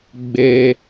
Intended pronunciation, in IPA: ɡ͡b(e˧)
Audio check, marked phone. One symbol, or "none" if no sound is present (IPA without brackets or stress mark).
e˧